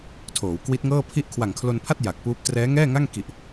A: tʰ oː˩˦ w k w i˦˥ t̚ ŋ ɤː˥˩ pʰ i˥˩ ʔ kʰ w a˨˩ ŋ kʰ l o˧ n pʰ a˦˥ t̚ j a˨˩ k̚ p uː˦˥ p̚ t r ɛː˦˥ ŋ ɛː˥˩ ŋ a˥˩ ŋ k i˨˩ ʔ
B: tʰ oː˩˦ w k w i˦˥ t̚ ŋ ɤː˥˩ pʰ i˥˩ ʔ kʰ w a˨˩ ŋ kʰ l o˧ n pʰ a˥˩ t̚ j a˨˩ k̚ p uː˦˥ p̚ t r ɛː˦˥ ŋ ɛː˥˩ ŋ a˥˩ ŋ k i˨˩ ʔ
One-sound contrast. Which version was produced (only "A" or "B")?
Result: B